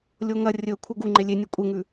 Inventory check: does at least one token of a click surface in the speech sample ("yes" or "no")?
yes